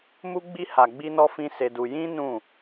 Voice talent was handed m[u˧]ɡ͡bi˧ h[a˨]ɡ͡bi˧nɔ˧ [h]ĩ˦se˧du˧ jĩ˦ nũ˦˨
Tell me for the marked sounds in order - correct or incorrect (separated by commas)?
correct, correct, incorrect